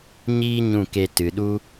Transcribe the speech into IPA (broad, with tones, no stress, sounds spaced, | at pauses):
ɲ iː˦ ɲ ũ˦˨ k e˧ t ɨ˨ ɗ u˦